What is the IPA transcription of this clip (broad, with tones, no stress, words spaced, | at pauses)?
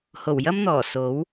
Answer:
ho˨˩wjɐ˥mn̪ɔː˨˩ so˨˥w